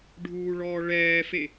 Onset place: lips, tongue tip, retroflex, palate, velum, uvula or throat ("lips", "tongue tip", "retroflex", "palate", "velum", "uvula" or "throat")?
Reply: retroflex